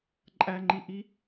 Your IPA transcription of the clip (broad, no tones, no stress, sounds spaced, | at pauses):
ǃʼ æ ŋ͡ǃ i ʔ i